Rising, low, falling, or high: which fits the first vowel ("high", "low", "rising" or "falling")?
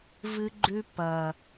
high